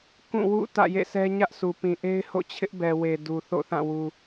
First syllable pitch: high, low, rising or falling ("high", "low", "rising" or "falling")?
falling